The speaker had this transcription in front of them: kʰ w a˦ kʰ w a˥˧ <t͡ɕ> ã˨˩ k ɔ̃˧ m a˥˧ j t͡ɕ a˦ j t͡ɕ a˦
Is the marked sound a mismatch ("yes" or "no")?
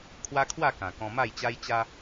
yes